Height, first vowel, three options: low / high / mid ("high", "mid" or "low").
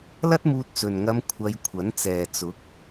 low